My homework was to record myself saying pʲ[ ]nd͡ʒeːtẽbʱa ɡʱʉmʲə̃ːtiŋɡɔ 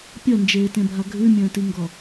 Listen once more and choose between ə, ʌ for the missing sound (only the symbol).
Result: ʌ